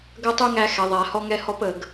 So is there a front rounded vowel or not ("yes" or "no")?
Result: yes